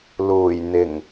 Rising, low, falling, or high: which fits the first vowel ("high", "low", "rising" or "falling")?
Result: low